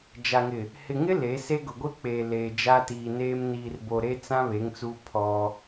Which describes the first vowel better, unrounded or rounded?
unrounded